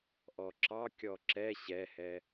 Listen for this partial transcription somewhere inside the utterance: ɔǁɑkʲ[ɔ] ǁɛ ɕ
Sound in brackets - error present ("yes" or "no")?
no